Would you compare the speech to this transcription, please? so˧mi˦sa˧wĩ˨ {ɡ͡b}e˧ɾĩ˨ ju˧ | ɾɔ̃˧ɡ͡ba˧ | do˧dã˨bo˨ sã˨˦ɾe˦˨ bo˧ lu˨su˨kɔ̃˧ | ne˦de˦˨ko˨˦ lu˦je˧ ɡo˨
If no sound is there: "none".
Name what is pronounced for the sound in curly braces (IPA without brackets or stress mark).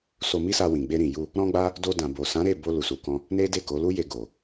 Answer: ɡ͡b